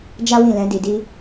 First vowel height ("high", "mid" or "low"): low